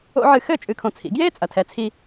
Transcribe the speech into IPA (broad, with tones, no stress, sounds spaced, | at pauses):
o̰˥ ʕ ɨ˧ x ɘ˥˩ t͡ʃʼ ɨ˧ kʰ õ˧ t͡sʰ ḭ˩˥ ɡ j eː˥ t͡sʼ ɐ˩˥ tʰ ɛ˩˥ t͡sʰ i˧